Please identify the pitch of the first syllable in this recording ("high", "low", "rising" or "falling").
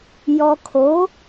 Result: low